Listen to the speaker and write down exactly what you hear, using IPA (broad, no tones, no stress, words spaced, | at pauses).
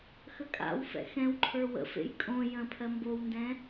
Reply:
xəkʼa̰wfɛ̰ xɛ̃wǃʰə˞ wə̰fḛj kʼõ jə̃pʰɜ mbowndɛ̃